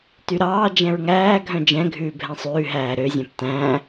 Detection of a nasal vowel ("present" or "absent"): present